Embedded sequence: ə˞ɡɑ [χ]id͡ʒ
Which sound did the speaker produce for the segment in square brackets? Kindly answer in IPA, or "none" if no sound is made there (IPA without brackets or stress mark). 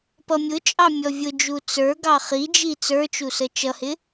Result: χ